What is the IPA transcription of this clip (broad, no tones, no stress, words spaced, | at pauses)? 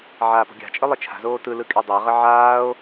ʕaːpo̤ɡʲa̤t͡ʃʼɯ lˠɯt͡ʃʰa̤zoː tɯlɯ kʼedˤaʁə ʕaːo̯